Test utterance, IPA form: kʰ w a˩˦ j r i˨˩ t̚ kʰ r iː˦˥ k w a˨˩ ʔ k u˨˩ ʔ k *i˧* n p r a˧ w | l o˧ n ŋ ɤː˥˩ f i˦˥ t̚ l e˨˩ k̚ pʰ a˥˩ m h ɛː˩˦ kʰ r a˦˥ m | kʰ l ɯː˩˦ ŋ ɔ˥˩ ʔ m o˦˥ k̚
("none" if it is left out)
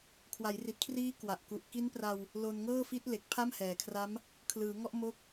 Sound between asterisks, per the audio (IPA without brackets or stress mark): i˦˥